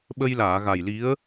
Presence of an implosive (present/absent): present